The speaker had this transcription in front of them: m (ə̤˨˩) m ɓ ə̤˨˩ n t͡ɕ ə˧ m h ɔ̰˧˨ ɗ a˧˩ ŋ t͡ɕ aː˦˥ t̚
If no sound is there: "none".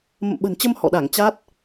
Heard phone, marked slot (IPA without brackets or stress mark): ə̰˧˨